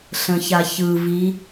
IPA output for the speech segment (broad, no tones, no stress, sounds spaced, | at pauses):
ɬ ə̃ ç a ç ɯ v i